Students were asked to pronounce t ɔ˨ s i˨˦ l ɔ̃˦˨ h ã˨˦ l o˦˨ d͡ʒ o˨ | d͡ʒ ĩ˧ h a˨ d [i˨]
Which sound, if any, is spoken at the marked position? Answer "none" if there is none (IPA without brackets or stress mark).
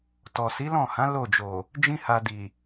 i˨